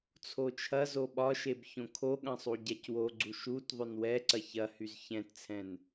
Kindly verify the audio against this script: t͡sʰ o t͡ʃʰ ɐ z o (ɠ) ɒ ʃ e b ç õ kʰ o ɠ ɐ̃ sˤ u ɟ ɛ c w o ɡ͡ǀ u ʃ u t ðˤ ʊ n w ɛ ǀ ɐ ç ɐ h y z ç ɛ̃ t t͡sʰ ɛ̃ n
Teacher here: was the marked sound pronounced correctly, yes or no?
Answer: no